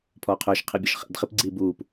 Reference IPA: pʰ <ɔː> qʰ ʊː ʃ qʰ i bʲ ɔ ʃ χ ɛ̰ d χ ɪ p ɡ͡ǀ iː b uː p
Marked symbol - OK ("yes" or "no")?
yes